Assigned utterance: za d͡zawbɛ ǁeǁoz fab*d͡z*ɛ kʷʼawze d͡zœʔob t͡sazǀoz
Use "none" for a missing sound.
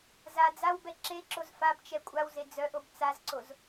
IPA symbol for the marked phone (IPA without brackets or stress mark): t͡ʃ